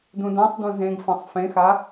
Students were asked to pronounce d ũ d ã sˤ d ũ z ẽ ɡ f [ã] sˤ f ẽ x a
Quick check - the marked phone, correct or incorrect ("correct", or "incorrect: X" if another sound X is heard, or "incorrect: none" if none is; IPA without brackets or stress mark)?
correct